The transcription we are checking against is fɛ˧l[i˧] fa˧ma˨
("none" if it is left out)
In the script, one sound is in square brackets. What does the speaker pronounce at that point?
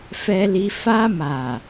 i˧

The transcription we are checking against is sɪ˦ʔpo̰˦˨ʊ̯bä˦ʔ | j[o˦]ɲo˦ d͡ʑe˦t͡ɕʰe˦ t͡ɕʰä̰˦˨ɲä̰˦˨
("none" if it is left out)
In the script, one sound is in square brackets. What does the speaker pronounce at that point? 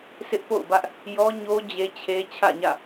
ɔ˦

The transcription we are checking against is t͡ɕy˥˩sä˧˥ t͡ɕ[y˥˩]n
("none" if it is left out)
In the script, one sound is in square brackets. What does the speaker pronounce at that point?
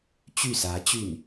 y˥˩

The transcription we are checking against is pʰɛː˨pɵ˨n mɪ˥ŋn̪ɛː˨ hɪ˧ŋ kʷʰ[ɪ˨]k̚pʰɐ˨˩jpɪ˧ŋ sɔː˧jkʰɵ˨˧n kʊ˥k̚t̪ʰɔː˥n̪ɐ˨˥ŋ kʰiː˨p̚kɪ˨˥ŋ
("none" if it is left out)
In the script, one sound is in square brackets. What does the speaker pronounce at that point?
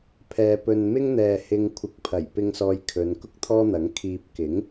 ɪ˨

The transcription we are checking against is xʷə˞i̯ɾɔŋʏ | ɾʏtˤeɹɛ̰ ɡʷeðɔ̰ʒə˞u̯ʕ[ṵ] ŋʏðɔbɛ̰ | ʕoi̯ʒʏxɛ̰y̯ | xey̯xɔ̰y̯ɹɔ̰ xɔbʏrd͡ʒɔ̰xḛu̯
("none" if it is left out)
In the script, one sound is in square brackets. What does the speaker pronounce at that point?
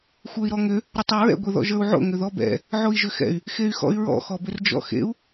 o̰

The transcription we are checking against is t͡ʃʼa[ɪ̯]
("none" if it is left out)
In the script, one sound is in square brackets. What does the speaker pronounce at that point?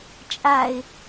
ɪ̯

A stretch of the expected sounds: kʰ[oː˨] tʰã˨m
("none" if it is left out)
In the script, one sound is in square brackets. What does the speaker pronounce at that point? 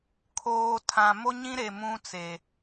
oː˨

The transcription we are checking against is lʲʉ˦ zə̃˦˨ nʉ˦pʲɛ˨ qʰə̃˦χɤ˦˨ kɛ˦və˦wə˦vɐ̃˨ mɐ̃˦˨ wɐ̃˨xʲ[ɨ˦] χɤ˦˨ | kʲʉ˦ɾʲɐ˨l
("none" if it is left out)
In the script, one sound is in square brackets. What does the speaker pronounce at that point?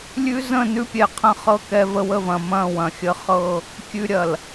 ə˦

